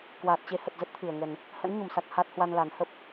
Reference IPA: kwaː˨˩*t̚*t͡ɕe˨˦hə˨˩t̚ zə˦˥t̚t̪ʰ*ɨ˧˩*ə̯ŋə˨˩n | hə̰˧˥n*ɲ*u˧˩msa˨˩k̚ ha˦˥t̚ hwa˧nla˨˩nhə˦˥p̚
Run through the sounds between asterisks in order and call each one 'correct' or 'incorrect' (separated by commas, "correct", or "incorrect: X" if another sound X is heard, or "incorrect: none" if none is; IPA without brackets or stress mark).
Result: correct, correct, correct